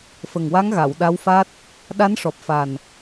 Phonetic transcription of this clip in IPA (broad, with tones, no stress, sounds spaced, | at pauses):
f ə˨˩ ŋ w a˧˥ ŋ ɣ a˨˩˨ w ɗ a˧˥ w f a˦˥ t̚ | ɗ a˧˥ n ʂ ɔ˨˩ p̚ f a˨˩ n